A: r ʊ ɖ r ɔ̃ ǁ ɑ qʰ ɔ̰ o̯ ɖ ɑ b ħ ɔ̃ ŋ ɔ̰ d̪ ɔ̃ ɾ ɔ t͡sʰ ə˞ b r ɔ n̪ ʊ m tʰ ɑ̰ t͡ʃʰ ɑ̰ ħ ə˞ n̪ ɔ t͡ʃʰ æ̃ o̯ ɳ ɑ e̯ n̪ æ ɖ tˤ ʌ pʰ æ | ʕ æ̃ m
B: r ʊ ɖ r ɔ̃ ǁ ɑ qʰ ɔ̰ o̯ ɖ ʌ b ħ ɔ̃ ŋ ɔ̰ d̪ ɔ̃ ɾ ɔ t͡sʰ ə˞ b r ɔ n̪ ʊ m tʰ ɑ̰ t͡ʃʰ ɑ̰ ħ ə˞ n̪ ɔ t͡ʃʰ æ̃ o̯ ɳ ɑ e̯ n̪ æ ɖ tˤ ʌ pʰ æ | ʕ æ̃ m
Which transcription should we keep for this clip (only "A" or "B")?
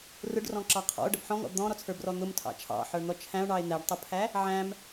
B